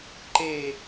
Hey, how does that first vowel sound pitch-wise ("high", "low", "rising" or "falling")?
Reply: falling